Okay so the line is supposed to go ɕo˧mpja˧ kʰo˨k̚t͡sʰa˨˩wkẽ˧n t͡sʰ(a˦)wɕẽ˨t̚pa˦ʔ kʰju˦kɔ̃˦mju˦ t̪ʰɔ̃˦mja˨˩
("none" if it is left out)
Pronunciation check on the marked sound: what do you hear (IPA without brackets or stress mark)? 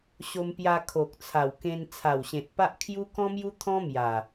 a˨˩